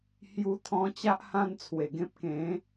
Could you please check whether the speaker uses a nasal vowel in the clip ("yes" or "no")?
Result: yes